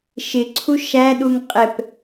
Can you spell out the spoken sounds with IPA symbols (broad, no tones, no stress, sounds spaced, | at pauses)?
ʃ ɪ ǀʰ u ʃ æ ɗ u ŋ qʼ ɛ p